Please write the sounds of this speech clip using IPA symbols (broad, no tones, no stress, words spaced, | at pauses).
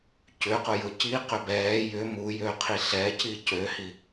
cʏqʊjʊ ciqʏ bɛː jʏ mujøqʰi ɬɛci cøhi